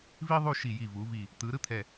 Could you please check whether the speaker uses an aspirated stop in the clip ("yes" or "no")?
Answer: yes